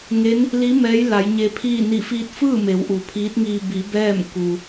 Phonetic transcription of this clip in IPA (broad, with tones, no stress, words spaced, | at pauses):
ŋe˧˥n | li˧˥ mɛː˧˥j la˩˧jɲe˧pʰiː˥˨ ni˧˩fiː˧t̚fɯː˥˨ me˩˧wʔu˩pʰiː˧˥t̚ŋiː˧ bi˩˧ bɛː˥˨m ku˩